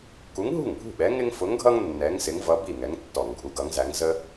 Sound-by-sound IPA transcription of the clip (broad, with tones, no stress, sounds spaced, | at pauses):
k u˨˥ ŋ ɦ ṳ˥˩ ŋ bʱ ṳ˥˩ ɓ ɛ˨˥ ŋ ɪ˦ ŋ f ʊ˨˥ ŋ ɡʱ ʌ˦ ŋ nː ɛ˨˥ ŋ s ɪ˨˥ ŋ v ʌ˨˥ b i˥˩ ŋ ɛ˨˥ ŋ tː ɔ˧˩˧ ŋ ɡʱ u˨˥ ɡ ʌ˨˥ ŋ z æ˨˥ ŋ z ə˦